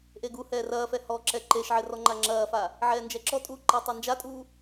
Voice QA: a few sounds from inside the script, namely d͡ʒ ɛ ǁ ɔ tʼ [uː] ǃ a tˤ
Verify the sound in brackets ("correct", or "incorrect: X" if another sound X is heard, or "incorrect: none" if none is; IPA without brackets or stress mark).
correct